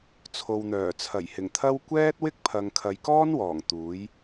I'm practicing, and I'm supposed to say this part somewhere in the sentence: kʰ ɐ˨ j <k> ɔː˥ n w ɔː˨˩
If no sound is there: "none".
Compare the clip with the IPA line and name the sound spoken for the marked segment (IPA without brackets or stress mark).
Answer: k